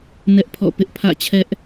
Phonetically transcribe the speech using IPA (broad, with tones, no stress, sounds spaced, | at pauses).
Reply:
n ɛ˦ ʔ pʰ ɔ̰˦˨ p ɪ˦ ʔ pʰ ä̰˦˨ t͡ɕʰ ɛ˦ ʔ